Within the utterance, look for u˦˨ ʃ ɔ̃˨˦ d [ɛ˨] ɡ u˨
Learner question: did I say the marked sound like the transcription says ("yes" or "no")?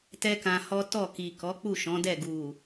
no